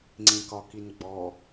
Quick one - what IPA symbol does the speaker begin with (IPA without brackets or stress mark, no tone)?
ŋ͡ǀ